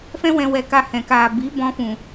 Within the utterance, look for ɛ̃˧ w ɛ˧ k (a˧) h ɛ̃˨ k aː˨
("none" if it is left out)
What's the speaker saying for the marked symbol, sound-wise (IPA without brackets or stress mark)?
a˧